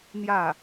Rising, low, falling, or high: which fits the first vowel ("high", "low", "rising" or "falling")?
falling